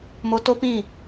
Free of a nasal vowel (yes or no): no